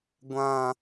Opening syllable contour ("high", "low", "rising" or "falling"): high